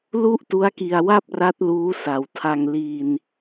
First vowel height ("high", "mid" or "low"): high